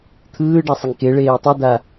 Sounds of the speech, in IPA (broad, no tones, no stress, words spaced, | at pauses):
t̪ʰɯːɖasˤeŋ keɭeː tˤod̪a